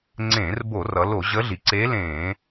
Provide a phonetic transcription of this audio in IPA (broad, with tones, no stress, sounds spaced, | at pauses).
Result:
ŋ͡ǀ ẽː˧˩˧ r b o˧˩˧ r ʌ˩˧ l o˧˩˧ ʑ əː˧˥ ɮ i˩˧ ǀ eː˧˥ l ẽː˧˩˧